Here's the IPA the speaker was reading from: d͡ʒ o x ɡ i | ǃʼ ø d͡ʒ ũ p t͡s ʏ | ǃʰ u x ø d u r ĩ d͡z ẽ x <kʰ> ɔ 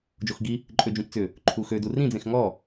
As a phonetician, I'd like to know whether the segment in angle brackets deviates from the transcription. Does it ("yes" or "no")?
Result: yes